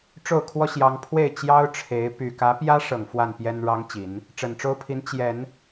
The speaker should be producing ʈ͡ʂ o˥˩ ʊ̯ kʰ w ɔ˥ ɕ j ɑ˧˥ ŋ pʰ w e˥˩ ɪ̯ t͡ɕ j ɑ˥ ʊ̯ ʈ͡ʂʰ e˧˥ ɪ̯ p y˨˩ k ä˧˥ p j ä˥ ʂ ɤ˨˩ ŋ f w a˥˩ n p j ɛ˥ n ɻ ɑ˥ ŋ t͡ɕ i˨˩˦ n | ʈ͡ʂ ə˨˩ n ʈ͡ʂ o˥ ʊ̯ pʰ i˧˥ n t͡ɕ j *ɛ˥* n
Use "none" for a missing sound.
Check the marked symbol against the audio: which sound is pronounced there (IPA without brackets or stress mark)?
ɛ˨˩˦